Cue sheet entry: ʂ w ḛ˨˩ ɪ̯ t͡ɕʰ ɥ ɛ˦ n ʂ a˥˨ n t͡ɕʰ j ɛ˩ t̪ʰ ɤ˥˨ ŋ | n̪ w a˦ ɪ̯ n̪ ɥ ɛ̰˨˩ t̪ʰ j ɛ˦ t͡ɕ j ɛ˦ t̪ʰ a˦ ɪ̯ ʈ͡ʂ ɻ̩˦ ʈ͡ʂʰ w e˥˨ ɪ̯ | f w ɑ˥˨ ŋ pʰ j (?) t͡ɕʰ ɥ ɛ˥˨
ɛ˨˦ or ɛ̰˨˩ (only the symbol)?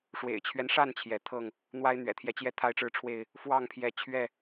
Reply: ɛ˨˦